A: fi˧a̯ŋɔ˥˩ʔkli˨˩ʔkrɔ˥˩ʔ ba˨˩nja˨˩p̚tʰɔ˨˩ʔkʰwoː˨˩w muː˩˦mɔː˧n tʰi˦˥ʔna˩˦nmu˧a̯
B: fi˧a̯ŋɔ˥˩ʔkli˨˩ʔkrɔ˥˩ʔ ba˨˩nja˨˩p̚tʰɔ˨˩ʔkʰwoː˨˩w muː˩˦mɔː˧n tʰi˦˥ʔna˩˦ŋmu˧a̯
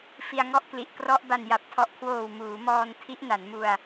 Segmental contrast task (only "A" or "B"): A